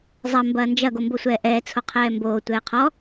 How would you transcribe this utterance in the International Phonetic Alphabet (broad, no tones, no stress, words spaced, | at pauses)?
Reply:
zˤɐ mbɐːnd͡ʒɐ ɡombosʷɛːʔɛː t͡sʰoqʰɛːmboː tʷɛːqʰɔ